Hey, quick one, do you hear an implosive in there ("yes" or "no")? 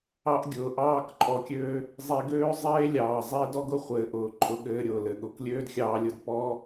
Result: yes